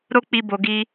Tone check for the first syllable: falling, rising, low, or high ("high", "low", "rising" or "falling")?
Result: high